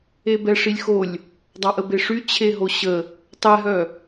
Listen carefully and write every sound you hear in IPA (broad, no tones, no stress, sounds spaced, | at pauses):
e b ɛ ʂ i lʲ x o lʲ | dˤ ɑ ʔ ə b e ʂ y t͡ɕʰ e ɦ o ɕ ə | tˤ ɛ ɦ œ